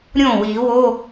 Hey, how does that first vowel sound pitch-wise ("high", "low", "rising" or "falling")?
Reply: falling